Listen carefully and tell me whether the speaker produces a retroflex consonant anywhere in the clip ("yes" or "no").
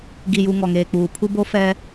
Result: no